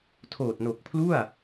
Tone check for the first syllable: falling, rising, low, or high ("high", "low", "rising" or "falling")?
low